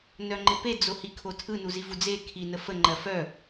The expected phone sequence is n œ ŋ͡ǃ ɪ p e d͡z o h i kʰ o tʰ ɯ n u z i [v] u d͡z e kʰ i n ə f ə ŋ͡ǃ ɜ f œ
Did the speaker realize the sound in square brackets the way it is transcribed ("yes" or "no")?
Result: yes